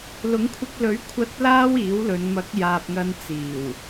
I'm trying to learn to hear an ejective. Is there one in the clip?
no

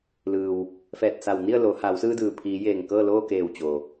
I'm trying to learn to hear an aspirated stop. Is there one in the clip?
yes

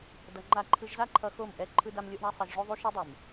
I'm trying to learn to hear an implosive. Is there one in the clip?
no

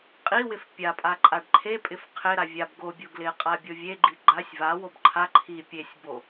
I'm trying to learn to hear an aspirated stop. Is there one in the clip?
yes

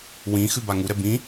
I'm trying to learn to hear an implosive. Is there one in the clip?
no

